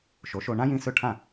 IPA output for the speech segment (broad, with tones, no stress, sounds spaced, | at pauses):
ʃ o˩˥ ʃ o˧ ɳ ã˥ j ĩ˧ s ɵ˥˩ ʈʰ ã˥˩